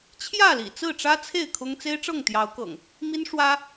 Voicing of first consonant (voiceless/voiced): voiceless